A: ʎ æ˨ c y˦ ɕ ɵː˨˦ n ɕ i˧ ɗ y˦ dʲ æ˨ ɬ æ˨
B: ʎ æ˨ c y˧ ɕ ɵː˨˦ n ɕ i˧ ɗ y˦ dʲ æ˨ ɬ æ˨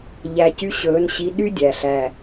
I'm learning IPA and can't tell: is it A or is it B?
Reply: B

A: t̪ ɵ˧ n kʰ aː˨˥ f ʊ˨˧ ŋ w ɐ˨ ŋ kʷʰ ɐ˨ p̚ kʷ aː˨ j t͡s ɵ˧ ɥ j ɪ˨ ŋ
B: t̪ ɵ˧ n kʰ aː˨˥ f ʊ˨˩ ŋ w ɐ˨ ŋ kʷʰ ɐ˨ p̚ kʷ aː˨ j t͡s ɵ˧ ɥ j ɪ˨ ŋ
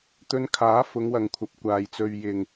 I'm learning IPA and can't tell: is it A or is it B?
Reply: A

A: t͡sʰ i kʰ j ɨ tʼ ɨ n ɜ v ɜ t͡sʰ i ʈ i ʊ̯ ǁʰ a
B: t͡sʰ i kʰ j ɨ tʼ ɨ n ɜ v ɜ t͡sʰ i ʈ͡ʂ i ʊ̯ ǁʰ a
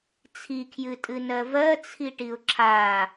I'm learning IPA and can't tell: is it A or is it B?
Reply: A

